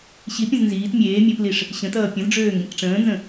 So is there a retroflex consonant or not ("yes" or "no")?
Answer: yes